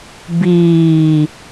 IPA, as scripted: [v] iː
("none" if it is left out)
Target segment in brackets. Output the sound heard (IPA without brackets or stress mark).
b